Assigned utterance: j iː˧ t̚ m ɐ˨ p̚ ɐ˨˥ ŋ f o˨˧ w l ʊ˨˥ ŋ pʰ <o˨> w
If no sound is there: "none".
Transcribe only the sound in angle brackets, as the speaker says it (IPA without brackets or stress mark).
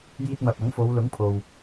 o˨